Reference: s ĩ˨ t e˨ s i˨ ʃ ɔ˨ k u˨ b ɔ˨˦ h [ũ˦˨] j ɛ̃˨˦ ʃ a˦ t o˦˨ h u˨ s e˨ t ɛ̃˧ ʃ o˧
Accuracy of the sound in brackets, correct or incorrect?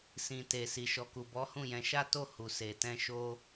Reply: correct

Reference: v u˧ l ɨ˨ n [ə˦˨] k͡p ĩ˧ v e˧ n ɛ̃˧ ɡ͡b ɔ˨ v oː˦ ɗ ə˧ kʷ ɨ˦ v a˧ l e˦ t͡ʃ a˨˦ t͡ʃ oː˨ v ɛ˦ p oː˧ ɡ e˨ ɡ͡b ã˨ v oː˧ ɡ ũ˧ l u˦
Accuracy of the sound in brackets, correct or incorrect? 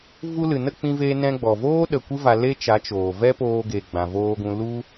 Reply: correct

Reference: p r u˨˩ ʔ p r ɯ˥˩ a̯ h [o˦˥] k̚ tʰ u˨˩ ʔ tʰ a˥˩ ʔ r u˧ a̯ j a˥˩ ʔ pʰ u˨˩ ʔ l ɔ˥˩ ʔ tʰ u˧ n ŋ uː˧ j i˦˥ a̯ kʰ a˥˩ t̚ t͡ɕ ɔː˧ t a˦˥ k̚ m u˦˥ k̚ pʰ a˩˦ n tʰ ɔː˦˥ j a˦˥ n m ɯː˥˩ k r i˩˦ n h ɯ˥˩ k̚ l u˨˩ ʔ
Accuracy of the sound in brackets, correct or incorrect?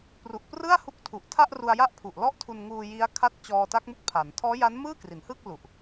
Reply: incorrect: u˦˥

